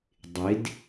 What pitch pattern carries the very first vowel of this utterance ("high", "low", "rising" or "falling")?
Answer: rising